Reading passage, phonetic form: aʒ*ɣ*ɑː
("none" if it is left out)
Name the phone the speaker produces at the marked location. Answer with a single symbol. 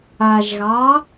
ɣ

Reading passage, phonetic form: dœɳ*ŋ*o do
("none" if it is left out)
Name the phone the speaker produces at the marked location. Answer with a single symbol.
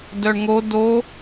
ŋ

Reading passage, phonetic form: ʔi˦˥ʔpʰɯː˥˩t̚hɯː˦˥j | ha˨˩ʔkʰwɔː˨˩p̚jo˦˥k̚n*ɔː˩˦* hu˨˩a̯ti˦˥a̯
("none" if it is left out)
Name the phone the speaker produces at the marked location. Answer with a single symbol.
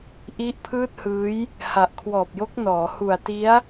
ɔː˩˦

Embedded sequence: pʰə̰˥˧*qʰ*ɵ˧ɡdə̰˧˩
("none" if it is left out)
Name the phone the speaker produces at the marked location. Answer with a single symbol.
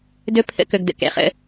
k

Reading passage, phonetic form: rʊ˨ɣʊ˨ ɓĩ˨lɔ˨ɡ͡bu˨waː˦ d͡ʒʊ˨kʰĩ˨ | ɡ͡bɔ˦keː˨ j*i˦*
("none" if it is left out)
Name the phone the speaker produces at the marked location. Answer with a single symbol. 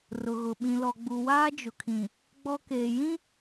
ĩ˦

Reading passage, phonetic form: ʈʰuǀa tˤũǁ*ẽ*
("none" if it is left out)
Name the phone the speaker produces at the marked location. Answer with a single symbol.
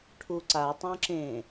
ẽ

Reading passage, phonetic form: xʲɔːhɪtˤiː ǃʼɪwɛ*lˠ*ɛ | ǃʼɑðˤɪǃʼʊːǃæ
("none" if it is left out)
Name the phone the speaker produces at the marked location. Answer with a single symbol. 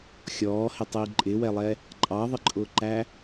lˠ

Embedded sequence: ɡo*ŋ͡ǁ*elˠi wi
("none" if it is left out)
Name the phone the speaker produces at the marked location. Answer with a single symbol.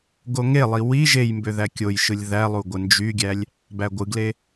ŋ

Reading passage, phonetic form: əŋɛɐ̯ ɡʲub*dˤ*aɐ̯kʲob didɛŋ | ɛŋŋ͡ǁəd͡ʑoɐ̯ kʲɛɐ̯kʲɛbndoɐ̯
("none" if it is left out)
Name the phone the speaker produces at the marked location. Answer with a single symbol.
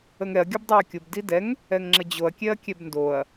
dˤ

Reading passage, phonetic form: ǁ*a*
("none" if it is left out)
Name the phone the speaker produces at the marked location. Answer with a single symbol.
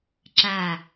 a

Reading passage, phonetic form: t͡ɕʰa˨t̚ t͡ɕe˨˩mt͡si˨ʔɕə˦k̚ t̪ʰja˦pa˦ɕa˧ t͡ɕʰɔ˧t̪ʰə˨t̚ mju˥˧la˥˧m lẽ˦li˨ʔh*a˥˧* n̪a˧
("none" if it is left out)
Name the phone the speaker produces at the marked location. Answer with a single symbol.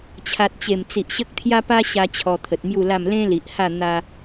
a˥˧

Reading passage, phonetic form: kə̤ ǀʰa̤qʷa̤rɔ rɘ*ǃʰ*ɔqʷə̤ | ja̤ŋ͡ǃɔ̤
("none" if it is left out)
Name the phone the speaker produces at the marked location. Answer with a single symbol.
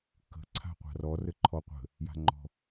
ǃʰ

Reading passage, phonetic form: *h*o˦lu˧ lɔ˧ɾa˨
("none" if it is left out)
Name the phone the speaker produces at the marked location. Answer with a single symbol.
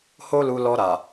h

